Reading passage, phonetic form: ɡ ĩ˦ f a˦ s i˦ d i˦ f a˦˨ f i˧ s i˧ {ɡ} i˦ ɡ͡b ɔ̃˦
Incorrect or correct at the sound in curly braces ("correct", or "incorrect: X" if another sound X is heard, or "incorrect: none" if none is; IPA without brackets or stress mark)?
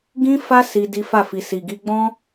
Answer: correct